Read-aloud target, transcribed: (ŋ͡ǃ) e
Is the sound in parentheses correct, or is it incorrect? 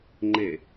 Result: correct